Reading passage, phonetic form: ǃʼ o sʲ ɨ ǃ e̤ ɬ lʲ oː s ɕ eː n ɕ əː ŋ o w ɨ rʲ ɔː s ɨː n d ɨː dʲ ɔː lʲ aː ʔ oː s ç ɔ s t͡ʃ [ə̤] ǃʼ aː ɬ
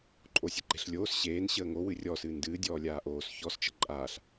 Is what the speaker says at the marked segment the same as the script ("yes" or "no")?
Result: yes